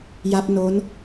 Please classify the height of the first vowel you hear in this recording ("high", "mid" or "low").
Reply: low